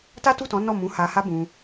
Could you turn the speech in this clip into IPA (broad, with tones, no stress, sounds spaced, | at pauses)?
t a˦ t u˦˨ t ɔ̃˨˦ n ɔ˦˨ m ũ˨˦ h a˧ h a˦ b ũ˧